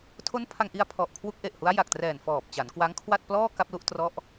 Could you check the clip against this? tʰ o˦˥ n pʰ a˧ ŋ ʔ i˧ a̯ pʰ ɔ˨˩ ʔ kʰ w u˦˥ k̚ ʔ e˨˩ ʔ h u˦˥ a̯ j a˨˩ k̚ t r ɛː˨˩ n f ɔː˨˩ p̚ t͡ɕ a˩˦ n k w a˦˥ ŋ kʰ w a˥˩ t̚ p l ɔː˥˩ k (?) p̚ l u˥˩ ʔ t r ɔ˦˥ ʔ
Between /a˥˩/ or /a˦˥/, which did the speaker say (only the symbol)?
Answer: a˥˩